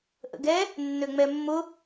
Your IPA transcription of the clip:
ʔə̰ɡɛ | nːøŋ͡mɛmːʊ

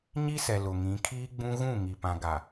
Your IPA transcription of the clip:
ɲi˦sɛ˨ lʊ˨ŋĩ˨˦kʰiː˦ɡ͡bũ˦ ɣũ˦˨ ŋi˨pã˨ɡa˨

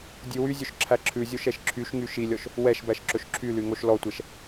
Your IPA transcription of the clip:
dʲʉwyzʲøʃ ǁʰæǁʰʉzʲoʃ ɛʃǁʰyʃŋy ʃilʲɔʃ | wɛʃbæʃ ǁɵʃǁʰyly ŋoʃlɔtʷɛʃ

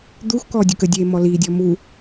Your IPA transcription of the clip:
d̪uxkɔːdʲuk ədʲeːmɔ liːdʲɔː mu

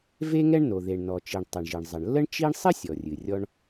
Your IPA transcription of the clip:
ve˥ŋɛ˥ɳno˩ ðe˩ɳnɔ˩t͡ʃi˩ɳ tˤə˩ɳʒɨ˩ɳ zˤə˩ɳlːə˥ɳ t͡ʃi˥ɳ sˤɨ˥sʲɔ˩rʲɨ˩ rʲɔ˥ɳ

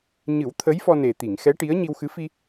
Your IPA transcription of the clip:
ɲɨ˨˩˦w t̪ʰə˧˥jfɔ˧ne˨˩ t̪i˨˩˨ŋxɛ˧˥ʈi˧˥ə̯ ɲi˧wxɨ˧˥ fi˧

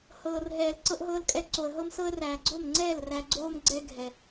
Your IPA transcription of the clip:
hɤː˨rɦɛː˨l ǀɤ˧ʔɦɤː˧lkʼɛ˧ ǀo˨ə̯ɦɤ˦msɤ˦ə̯ ræː˨ɡ͡ǀo˦˨mŋ͡ǀɛː˦˨l ræ˧ɡ͡ǀoː˦m ɡ͡ǀɛ˧ɡʱɛ˨

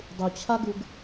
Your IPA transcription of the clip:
dˤut͡ɕʰaɡuɡ

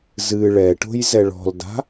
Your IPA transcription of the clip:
zɨ ɭɛʈo̤jzɛ ɭɔ̤lda̤

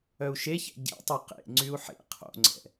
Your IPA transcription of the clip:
œu̯ʃeçɛ̰ ɟḛtˤy qḛŋ͡ǀyu̯ ħḛ qʰo̰ŋ͡ǀɛ̰

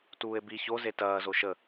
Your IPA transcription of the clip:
tuːe̯bi ço zetɐː zoʃə

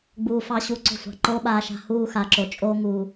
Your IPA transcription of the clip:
ɡ͡buː˧ fɑ˦ɕu˦˨ǀo̤˦ sʷɑ̤˨ǃoː˦ ɓaː˧ʃa̤˧ huː˧ xa˨ǁo˨ t͡ʃʼoː˧ŋuː˨

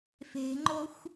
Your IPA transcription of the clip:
fe̤ŋ͡ǃoxʷ

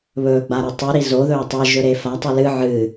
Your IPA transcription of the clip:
βɵːɡ͡baɾʉ tˤʉɾi zoðɵː tˤɨʒɵɾe fatˤɨ lɨ ʕɨ

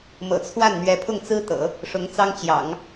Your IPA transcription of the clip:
mɤ̰˨˩t͡sʰwa˥˩n n̪ɥɛ˧˥pʰʊ˥˩ŋt͡sɹ̩˥t̪ɤ̰˨˩˦ | ʂʊ˧˥ŋt͡sɑ˥ŋt͡ɕjɑ̰˨˩˦ŋ

